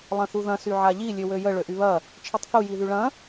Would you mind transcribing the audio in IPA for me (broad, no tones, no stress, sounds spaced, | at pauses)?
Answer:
lˠ ɐ̃ θ u ð ɐ̃ s y ʕ a ʎ i lʲ ø w ø j ə ɭ ø ʔ y β ɐ | t͡ʃʰ i tˤ θ u j i ð y ɭ ɐ̃